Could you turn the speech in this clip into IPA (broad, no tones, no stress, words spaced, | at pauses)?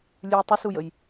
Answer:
lʲʉ tˤusujəj